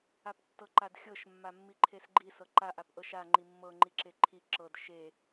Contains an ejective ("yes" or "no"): no